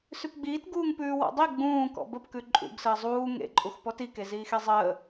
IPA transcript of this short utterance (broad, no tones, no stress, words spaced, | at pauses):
sʉpɡ͡biːtɡuːŋ pʉːwɔ̰dˤi ɡ͡bũːkɔ̰ bəpkʉ ǃʼṵɡsəː zˤuː ŋḛǃʼuxpɔt ike ziːxezˤəː